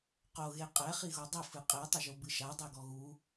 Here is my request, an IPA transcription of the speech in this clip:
q o ɣ e qʼ ɛ χ i ɣ o dˤ ɘ f ɨ qʼ e tˤ ɘ ʒ o b ɨ ʃ a dˤ e ɡ ɔ ɣ u

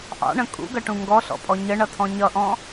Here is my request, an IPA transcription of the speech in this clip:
ʔ ɑ̰ ɳ ə̃ kʼ ṵ ɡ ʌ ʈ ũ ŋ ɡ ɔ ɬ ɔ̰ pʼ ɔ ɲ ə ɳ ʌ tʰ ɔ̃ ɲ ʌ ʔ ɔ̃

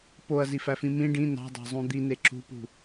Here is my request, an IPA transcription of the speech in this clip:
p o ɐ̯ z i f æ f ĩ m ĩ ɖ ĩ n ɑ̤ dˤ ɑ̤ zˤ ũ d̪ i n e ǁ ṳ p ṳ

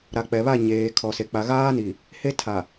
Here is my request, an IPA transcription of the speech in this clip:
ɾ a˨ k͡p ɛ˨ β a˦˨ ɲ eː˨ kʰ ɔ˨ s e˨ k͡p a˨ ɣ aː˦ n i˨ | h e˦ tʰ a˨

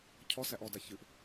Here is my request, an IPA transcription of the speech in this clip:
cʰ ɔ s æ ʔ ɔ d a ç ɨ ʔ

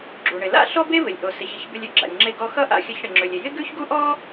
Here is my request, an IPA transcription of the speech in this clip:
ɡ͡ǁ u˩ ɳ ɪ˩ l a̰˥ ɬ ɔ˥ b e˥ v ɪ˩ lʲ ʔ o˩ s ɪ˩ ç ɪ˧ ç b ɪ˧ lʲ ø˥ ɡ͡ǁ a̰˩ lʲ ŋ͡ǁ e˧ ɡ ɔ˧ x ʌ˥ ʔ a̰˧ xʲ ʌ˧ ç ɽ ɪ˩ ŋ͡ǁ ø˩ lʲ ɪ˩ j ɪ˥ ɡ ʉ˥ ç ɡ u˥ ʔ ɔ˥

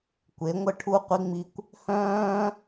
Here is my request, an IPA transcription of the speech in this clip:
kʷ e˨˦ ŋʷ ə˦ ʈʰ u˦ qʷ i˧ ŋ͡m i˧ kʷ | h œ̃ː˧

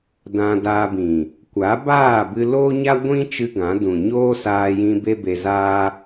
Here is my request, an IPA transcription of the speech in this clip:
d ã˧ d aː˧ b ĩ˨ | kʷ a˨˦ b aː˦˨ b ɨ˧ l oː˦ ɲ a˦ ɡʷ ĩ˦ t͡ʃ ɨ˦ ɡ ã˨˦ d ũ˨ ɲ oː˦ s aː˧ j ĩ˧ b e˦ b e˧ z aː˦

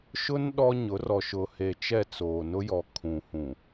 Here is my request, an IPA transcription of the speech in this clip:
ʃ ʊ˦ n ɗ ɔ˦ ɲ ʊ˨˦ r ɔ˨ ʃ ʊ˨ h e˨ t͡ʃ ɛ˦˨ t͡s oː˨ n ʊ˦ j ɔ˨ kʰ ũ˨ h ũ˨

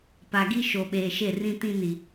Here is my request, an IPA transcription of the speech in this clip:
p a˨ ɡ i˦ ʃ o˨ ɓ eː˨ ʃ e˦˨ r ĩ˦ t ĩ˦ n i˨

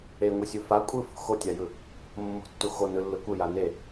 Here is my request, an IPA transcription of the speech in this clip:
e ŋʷ i sʲ u f a kʷʼ ɯ f o̤ x o tʲ a j ɯ | mː o̤ tː u x o n ɯ lː ɯ kʷ ɯ j a n e

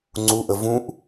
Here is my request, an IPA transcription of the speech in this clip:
ŋ͡ǀ u ʔ ə v ũ ʔ

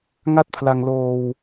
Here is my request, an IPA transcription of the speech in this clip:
ŋ a˥˩ t̚ pʰ l a˧ ŋ l oː˧ w

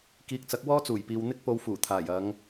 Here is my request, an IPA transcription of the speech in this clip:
k iː˨˥ k̚ t͡s ɐ˨˥ k̚ w ɔː˥ t͡s uː˨˩ j p iː˨ w n̪ ɪ˥ k̚ p o˧ w f uː˨˩ t̪ʰ aː˨˩ j ɐ˨˧ ŋ

